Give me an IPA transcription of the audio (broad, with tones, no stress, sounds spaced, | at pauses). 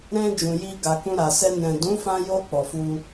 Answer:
ɾ ɛ̃˧ d͡ʒ ũ˨ j i˧ ɡ a˨ k ũ˧ ɾ a˨ s ɛ˧ n ɛ̃˨ d ũ˨˦ f ã˧ j o˧ k͡p ɔ˨ f u˧